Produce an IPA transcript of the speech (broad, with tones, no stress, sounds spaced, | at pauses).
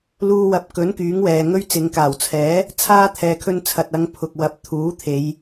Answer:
l uː˧ w ɐ˨˥ p̚ k ɵ˨˥ n k yː˨˥ ŋ w ɛː˨ ŋ ɵ˥ ɥ t͡s ɪ˨˧ ŋ k aː˨˩ w t͡sʰ ɛː˨˥ | t͡sʰ aː˥ t̪ʰ ɛː˨ kʰ ɵ˧ n t͡sʰ ɐ˨ t̚ ɐ˨˧ ŋ pʰ ʊ˨ k̚ w ɐ˨˥ p̚ t̪ʰ uː˨˥ t̪ʰ e˨˧ j